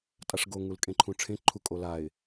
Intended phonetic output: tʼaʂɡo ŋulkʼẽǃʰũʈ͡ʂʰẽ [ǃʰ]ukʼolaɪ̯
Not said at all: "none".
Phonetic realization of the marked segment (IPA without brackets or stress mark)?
ǃʰ